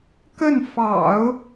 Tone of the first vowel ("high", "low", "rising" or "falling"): falling